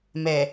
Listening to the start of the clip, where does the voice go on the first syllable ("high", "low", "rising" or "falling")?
low